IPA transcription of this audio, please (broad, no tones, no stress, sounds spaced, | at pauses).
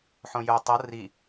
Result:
ħ õ j ʊ tˤ ɤ r i